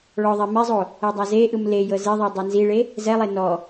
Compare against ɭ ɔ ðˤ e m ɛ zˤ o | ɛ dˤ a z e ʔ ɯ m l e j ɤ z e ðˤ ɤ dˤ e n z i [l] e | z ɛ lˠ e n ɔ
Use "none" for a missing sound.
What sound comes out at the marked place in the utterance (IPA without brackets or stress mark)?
ɭ